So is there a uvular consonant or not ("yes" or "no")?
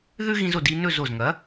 no